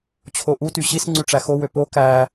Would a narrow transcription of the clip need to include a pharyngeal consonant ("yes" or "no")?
no